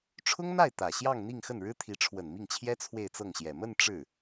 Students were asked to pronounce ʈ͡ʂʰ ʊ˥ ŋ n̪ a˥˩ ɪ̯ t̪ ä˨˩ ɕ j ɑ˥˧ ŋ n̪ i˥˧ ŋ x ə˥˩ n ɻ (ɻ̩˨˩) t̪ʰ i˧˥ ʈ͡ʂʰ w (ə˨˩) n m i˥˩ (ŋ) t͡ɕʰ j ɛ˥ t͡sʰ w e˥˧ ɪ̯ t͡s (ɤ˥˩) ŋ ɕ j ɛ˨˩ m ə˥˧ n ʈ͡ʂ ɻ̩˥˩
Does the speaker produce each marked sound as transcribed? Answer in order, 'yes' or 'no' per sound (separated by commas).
no, yes, yes, yes